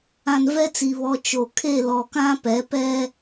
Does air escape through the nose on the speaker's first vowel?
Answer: yes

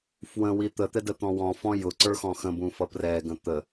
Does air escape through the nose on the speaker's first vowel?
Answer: yes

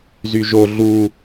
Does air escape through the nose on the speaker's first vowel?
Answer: no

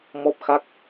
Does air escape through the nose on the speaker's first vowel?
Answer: no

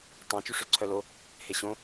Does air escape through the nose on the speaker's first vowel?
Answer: yes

